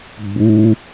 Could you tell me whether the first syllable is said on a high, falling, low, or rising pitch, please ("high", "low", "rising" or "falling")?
high